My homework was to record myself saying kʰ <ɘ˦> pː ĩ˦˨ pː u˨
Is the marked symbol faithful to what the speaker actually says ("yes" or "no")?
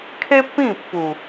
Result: no